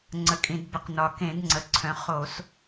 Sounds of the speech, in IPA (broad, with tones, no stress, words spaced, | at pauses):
ŋ͡ǀə˩˧kʼĩ˩dbə˩˧qnɒ˩ kẽ˧˩˧dŋ͡ǀə˩˧ǀʰœ̃˩˧ χo˧˩˧s